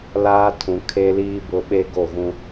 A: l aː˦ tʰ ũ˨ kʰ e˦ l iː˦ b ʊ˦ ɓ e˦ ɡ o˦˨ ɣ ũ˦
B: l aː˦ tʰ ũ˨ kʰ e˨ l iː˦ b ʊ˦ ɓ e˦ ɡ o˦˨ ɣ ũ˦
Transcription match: A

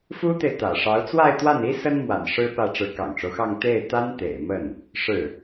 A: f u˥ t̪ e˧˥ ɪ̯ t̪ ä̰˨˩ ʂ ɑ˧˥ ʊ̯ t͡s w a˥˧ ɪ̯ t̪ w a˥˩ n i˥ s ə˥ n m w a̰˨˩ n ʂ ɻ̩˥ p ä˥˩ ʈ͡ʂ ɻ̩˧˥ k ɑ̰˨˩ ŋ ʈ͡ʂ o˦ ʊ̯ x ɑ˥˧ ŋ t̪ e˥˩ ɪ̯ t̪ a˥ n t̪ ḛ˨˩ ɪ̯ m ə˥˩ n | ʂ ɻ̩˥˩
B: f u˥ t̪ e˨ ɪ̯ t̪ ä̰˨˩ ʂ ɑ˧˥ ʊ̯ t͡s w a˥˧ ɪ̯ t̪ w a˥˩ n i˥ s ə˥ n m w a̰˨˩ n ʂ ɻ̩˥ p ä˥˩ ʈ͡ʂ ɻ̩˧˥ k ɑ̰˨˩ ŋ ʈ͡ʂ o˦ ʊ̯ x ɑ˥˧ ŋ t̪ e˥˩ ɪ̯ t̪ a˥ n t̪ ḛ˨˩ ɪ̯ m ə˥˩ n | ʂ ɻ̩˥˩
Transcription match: B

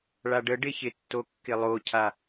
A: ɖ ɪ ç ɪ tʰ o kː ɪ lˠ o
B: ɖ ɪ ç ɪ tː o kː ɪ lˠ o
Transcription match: B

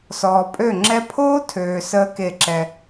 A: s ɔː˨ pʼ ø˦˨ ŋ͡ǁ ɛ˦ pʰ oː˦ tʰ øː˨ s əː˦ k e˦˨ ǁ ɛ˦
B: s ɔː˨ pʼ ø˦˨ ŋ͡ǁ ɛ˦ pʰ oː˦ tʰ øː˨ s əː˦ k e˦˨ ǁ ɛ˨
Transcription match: A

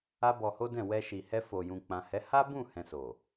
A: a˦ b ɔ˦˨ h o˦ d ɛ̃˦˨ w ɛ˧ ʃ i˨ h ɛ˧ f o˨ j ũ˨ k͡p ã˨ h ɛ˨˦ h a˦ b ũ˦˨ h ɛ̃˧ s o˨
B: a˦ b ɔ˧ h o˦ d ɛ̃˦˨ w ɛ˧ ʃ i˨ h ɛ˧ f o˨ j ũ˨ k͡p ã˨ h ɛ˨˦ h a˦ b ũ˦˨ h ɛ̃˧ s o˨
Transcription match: B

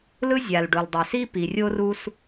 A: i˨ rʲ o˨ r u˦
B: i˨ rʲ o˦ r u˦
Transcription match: B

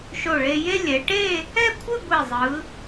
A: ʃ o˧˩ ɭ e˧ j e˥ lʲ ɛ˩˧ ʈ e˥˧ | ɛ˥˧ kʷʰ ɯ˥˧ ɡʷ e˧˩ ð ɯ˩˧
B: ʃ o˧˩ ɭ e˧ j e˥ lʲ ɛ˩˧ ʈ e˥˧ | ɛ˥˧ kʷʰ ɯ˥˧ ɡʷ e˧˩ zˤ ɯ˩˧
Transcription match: B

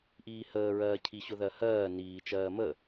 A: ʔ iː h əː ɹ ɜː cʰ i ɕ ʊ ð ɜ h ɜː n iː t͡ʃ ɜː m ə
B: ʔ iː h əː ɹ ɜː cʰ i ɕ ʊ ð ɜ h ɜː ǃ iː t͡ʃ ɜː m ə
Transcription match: A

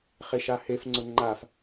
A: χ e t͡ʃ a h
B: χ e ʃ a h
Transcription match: B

